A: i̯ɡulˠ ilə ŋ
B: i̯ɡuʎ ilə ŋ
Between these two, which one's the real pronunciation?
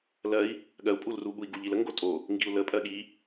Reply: B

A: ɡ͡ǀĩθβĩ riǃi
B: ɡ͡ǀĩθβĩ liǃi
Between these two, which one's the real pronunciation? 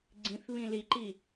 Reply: B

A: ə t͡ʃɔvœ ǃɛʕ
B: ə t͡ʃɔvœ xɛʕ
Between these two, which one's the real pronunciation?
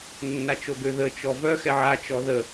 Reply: B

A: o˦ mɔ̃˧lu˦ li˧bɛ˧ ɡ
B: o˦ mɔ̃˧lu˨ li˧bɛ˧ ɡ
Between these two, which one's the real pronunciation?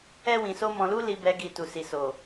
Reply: A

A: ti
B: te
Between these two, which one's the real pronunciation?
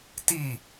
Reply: A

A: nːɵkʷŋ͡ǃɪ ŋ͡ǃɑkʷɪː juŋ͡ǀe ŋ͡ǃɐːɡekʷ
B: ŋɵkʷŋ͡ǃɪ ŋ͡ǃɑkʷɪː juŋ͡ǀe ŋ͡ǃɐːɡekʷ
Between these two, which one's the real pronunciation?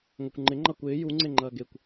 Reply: B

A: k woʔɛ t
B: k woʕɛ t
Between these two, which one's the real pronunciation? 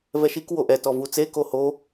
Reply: A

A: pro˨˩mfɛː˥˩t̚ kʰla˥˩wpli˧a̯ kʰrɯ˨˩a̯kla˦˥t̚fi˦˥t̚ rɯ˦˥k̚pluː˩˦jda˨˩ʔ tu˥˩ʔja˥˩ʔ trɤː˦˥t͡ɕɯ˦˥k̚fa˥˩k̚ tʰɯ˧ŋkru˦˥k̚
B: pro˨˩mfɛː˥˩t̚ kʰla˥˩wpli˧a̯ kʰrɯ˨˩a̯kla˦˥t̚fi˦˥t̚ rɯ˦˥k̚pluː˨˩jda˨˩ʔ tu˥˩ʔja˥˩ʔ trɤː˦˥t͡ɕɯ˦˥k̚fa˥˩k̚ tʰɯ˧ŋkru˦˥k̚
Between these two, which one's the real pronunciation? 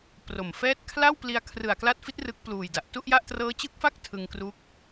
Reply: B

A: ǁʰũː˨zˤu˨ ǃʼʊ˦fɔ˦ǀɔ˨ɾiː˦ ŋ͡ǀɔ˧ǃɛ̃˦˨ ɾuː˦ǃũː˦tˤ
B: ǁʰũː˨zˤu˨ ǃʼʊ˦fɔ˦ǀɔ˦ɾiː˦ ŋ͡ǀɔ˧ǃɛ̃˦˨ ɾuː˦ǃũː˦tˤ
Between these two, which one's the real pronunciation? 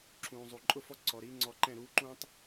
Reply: A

